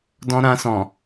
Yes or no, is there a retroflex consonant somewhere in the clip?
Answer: no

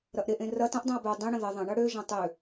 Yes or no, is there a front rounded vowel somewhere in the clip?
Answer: yes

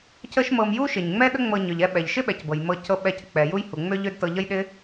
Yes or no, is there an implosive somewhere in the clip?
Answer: yes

